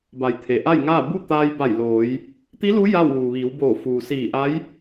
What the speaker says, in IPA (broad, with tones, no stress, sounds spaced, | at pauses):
b a˩˧ j t̪ʰ e˩ ʔ a˥˨ j ŋ aː˥˨ b u˥˨ t̪ aː˧ j b a˧˩ j l oː˩˧ j | t̪ i˧˥ l u˧˥ j a˥˨ w ʋ uː˩ ʋ iː˩˧ w b oː˧˩ f uː˩ s iː˧˩ ʔ a˧˥ j